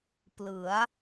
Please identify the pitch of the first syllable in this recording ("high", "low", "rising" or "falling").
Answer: rising